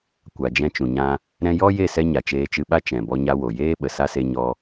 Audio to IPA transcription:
kʷ a˨ d͡ʒ ɛ̃˧ t͡ʃ ũ˨ ɲ ã˧ | ɾ ɛ̃˧ j ɔ˦ j e˦˨ s ɛ˧ ɲ a˨ t͡ʃ eː˧ t͡ʃ ɨ˧ ɓ a˦ t͡ʃ ɛ̃˨ b ɔ˧ ɲ a˧ w o˨ j eː˦ ɓ ə˨ s a˦ s e˧ ɲ ɔ˧

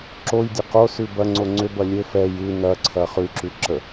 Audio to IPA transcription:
ǁ o j dʲ ɐ q o s ʉ b ɐ ŋ͡ǀ o ŋ͡ǀ ʏ b ɐ lʲ ɘ f ɛ j ʉ n ɐ ǀʰ ɐ χ ʉ ǁ ʉ ǁ ə

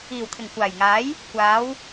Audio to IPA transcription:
iː˨˩ w t̪ʰ ɪ˨˩ ŋ kʷ aː˨˩ j ŋ aː˨˥ j | kʷ aː˨˥ w

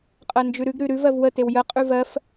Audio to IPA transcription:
qʼ ɜ n d͡ʒ ʉ ɾ ʉ ɡ ɾ ʉ ɾ ʉ v ɜ v w ə t e w j ə qʼ ʉ v ɜ f

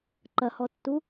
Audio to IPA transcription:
ǃ ɐ h ɔ tː u

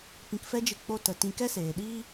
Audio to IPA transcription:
p ĩ˧ k f ɛ˦ d͡ʒ ɨ˧ k͡p o˦ t ə˧ t ĩ˧ k ɛ˦ s eː˨ ɗ iː˦

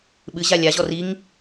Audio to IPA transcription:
ɓ ɨ ʑ a lʲ a ʑ ɔ r i ŋ

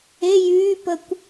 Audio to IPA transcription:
e j yː p ə kʷ

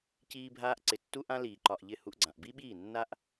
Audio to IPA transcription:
c iː˦ bʱ aː˦ ʔ ǀ ɪ˨ tː u˦ ʔ ã˦ l iː˨ ǃ ɒ˨ ʔ ʎ ɪ˦˨ h u˦ ʔ ɡ͡ǀ ã˨ ʔ b i˦ ɓ iː˦˨ nː a˦ ʔ

